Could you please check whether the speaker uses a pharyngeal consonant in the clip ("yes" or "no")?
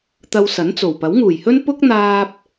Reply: no